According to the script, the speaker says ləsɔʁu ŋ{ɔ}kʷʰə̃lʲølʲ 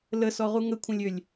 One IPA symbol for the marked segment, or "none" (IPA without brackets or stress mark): ə